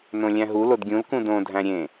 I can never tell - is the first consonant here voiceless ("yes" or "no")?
no